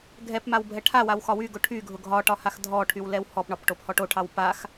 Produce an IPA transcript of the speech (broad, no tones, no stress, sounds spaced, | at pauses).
ɡʱ ɛ p m a w bʱ ɛ ʈʰ a w a w x ɒ w y ɡ ʊ ʈʰ y ɡʱ ʊ ɡʱ ɒ ʈ ɒ h a x dʱ ɔ ʈʰ y w l ɛ w h ɔ p ɳ ɒ p ʈ o p h ɔ ʈ o ʈʰ ɑ w p a x